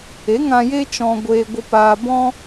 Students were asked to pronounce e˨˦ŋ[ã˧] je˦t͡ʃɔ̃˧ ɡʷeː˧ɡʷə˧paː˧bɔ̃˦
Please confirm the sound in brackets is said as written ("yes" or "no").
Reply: yes